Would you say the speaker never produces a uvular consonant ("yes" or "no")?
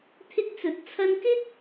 yes